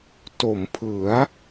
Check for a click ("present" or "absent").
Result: absent